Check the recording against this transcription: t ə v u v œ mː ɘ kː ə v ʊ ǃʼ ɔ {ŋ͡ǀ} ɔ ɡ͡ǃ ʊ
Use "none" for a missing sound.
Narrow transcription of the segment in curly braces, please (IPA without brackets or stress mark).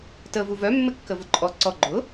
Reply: ǀ